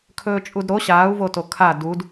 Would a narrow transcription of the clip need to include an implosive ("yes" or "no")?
no